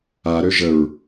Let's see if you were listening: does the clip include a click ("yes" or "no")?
no